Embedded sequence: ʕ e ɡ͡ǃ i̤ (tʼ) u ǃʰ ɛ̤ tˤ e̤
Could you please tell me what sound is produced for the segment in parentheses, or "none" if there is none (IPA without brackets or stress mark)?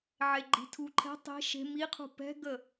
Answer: tʰ